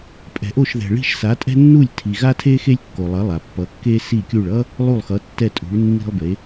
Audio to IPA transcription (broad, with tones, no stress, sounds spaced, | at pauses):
pʼ ɛ̤˩ ʔ o˥˩ ʃ ð ɛ̤˩ ɭ i̤˥˩ ʃ s a˩˥ tʼ ɛ̤˥ nː u˥˩ lʲ tʰ i˩ ɣ a˥ tʰ e˥ x e˥ lʲ kː o˩ lˠ ʌ˩˥ lˠ a˩ pː ʌ˩˥ kː e˥ s i˥˩ kʲ u˥˩ ɭ ʌ˥ | lˠ u˥˩ lˠ x ʌ˩˥ tː ɛ˥˩ tʼ ṳ˩˥ ɭ nː i̤˥ lˠ b e˩˥